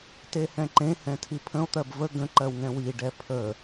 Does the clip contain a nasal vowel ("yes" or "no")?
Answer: yes